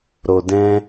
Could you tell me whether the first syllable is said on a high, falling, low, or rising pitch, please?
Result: low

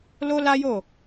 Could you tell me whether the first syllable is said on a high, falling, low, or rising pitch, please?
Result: high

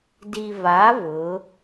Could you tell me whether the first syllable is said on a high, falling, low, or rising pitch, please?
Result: low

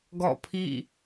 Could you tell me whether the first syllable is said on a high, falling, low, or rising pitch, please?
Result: falling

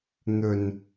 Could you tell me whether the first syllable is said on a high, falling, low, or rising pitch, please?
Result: low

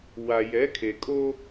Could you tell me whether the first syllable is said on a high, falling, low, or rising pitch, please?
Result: low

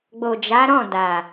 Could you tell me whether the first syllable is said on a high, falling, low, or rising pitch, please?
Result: low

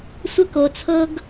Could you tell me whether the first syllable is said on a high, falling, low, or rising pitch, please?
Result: high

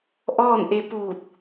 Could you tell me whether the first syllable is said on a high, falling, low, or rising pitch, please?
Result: falling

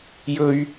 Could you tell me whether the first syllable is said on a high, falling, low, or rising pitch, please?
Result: high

